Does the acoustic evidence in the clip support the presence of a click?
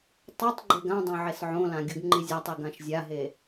yes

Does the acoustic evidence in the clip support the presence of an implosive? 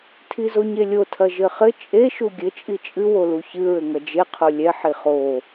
no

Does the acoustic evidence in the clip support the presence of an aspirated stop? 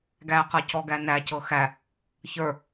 no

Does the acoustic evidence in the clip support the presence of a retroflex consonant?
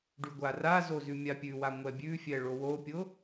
yes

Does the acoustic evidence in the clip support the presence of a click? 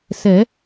no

